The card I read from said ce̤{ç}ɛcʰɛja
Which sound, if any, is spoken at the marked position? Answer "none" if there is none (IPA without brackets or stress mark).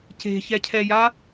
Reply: ç